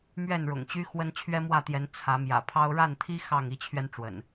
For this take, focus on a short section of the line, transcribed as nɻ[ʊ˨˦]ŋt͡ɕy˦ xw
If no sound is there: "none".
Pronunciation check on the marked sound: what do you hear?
ʊ̰˨˩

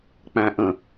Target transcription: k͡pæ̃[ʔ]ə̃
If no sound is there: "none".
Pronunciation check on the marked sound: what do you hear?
ʔ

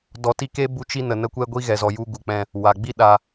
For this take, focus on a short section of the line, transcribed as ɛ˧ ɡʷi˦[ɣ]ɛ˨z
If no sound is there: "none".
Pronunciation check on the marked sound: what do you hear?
ɣ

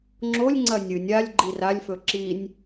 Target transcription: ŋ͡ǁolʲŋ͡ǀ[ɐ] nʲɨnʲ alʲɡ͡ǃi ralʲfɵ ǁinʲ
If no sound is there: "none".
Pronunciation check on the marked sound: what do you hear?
ɐ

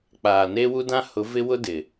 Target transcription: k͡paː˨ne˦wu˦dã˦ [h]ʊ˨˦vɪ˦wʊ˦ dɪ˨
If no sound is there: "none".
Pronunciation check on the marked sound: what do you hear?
h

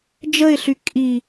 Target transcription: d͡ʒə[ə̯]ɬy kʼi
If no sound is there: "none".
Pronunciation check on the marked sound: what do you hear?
ɪ̯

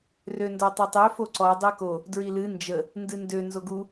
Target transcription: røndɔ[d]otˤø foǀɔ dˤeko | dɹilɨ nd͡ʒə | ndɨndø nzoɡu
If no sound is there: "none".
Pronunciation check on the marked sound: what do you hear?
tˤ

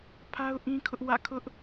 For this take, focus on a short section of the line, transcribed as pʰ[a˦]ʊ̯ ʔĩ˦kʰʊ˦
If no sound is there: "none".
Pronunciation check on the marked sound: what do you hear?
a˦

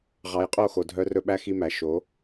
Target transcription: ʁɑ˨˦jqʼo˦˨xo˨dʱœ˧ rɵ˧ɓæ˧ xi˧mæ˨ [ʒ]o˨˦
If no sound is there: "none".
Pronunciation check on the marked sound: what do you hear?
ʃ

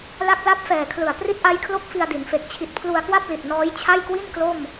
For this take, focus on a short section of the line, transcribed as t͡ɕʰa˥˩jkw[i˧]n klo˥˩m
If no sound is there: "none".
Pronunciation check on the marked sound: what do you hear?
i˥˩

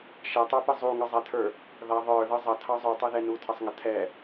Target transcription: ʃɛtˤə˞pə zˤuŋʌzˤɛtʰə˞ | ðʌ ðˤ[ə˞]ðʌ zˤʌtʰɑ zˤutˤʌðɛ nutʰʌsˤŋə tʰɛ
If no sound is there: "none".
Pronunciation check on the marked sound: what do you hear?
ə˞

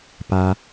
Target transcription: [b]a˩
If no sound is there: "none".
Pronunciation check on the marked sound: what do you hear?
p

